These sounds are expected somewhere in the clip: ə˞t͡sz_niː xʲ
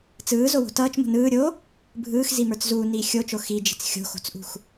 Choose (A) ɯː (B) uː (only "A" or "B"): B